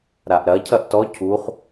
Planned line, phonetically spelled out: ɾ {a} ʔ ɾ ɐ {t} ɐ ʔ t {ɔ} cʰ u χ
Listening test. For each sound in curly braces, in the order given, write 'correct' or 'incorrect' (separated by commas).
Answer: correct, incorrect, correct